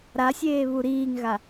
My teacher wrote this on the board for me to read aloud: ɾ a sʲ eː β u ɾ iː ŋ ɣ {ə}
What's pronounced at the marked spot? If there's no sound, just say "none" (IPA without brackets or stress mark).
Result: a